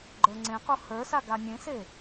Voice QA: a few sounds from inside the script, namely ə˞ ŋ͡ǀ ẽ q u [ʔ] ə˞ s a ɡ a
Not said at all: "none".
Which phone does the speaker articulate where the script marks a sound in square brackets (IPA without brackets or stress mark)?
h